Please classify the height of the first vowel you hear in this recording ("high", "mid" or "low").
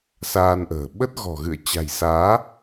low